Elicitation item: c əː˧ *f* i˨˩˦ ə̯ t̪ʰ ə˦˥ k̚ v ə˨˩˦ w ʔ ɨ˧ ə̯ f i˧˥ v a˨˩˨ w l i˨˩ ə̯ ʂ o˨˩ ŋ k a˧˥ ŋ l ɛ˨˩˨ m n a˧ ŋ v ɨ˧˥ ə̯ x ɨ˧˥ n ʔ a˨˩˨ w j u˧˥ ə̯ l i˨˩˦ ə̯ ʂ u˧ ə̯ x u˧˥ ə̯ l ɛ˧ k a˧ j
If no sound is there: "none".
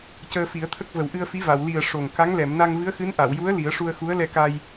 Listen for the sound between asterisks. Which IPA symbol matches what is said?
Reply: f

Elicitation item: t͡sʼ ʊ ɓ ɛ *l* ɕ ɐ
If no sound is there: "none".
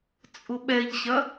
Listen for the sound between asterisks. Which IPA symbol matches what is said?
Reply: ʎ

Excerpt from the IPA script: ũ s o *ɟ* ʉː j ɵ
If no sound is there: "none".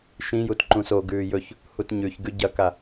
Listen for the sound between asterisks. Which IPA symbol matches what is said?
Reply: ɡ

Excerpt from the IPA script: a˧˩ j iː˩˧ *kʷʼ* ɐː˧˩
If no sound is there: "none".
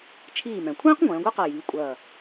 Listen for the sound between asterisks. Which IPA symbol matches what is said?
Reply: kʷʼ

